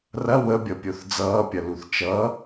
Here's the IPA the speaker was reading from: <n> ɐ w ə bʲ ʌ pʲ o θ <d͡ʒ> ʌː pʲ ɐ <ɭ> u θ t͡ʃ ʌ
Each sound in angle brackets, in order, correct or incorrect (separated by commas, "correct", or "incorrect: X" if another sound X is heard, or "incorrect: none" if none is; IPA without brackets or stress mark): incorrect: r, incorrect: d͡z, incorrect: l